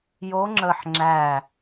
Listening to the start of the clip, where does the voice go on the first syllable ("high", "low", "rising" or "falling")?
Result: rising